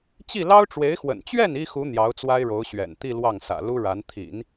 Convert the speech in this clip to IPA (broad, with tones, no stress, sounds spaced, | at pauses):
t͡ɕ i˥˩ l ɑ˥ ʊ̯ ʈ͡ʂ w e˧˥ ɪ̯ x w ə̰˨˩ n t͡ɕ ɥ ɛ˥˩ n i˥ x u˧˥ n̪ j ɑ˧˥ ʊ̯ t͡s w a˥ ɪ̯ ɻ o˧˥ ʊ̯ ɕ ɥ ɛ̰˨˩ n t̪ i˥˧ l w ɑ˥˩ ŋ s ä̰˨˩ l u˥ ɻ a˧˥ n t̪ʰ ḭ˨˩˦ n